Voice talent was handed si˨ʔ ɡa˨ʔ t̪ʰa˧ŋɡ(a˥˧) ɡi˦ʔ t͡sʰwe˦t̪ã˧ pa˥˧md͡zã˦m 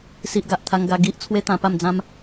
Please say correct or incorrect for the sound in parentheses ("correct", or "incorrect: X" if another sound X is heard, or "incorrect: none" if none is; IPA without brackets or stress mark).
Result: incorrect: a˧